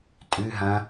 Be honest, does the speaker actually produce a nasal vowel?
yes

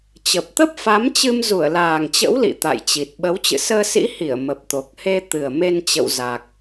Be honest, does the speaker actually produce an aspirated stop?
no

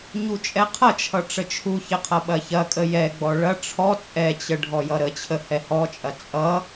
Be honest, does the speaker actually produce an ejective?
yes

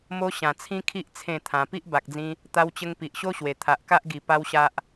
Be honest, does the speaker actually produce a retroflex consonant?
no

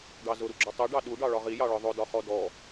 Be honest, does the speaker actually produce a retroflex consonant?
yes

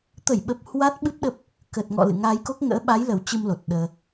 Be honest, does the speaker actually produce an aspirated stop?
no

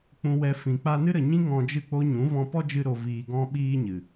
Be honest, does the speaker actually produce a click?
no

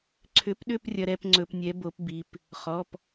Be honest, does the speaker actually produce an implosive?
yes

